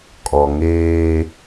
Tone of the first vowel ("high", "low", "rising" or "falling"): low